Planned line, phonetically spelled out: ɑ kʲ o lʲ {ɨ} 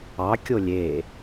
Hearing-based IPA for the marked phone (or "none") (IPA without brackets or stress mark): e